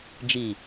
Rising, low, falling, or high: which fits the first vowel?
low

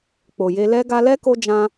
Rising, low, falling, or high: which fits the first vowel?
low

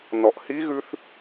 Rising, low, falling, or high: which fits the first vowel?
low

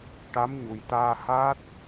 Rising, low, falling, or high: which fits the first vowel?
rising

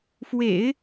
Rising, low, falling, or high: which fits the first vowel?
low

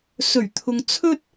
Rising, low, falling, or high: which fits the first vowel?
low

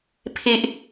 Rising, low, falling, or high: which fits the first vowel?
high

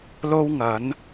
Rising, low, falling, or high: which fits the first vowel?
high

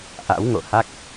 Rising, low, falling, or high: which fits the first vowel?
rising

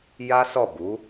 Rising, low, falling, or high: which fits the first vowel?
high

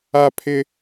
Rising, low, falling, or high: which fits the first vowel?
high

